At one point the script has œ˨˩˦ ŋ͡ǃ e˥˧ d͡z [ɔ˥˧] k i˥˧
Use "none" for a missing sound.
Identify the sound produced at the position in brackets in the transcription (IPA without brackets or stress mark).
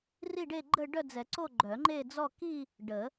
ɔ˥˧